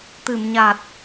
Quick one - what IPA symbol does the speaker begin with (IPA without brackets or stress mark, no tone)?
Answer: t̪